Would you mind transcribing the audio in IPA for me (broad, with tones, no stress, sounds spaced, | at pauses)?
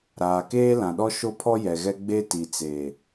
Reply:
ɾ aː˨ k eː˦ l ã˨ ɗ ɔ˦ ʃ o˦ pʰ ɔ˦ j ɛ˨ ɣ ɛ˦ ɡ͡b e˦ t i˨ t͡s eː˨